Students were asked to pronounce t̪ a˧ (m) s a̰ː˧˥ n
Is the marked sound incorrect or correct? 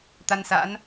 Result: incorrect